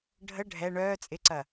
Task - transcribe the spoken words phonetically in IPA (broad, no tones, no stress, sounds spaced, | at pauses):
ɖʱ ə ɖʱ ɛ ɳ œː t͡sʼ ɪ ǀ ɐ